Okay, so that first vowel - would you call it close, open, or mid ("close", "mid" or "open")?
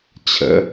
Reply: mid